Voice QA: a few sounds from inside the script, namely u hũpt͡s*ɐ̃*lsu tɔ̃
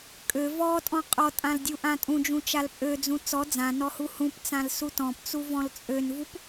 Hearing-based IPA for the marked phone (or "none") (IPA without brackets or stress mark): ã